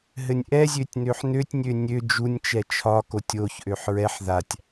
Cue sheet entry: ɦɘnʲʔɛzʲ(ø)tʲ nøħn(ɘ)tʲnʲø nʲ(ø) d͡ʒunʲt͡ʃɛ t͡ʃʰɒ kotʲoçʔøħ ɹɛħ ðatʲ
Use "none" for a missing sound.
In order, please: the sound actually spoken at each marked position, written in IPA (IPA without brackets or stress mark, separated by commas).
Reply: ø, ø, ø